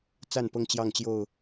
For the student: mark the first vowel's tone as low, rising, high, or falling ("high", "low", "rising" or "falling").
falling